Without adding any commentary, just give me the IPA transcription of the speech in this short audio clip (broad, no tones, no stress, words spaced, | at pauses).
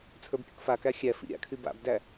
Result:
t͡sʰə˞bpʲṵkfakæ xʲæfḭ ɾʲa̰kʰy ba̰bdæ